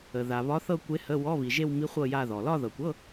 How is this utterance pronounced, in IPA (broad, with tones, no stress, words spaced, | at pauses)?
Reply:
ə˨ ða˨βɒ˧˥θɤ˥˧ kʷe˧˥hə˧˥˧ wɔ˧˥˧βi˨ʒe˥˧wmi˧˥ χʷɤ˥˧ja˥˧ðɔ˨ lɒ˥˧ðɤ˨kʷɤ˧˥˧